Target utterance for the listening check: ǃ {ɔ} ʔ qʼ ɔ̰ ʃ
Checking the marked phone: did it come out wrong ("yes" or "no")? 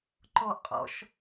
no